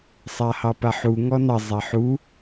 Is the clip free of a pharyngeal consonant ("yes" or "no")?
no